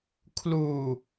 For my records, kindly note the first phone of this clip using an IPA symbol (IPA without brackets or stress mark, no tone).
kʰ